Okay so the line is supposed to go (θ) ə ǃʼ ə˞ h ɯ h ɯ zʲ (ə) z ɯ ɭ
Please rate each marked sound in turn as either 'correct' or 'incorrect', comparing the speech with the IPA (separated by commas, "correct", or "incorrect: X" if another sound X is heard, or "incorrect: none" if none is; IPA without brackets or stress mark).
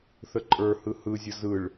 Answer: correct, correct